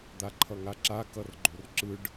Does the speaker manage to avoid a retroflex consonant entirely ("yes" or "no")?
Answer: no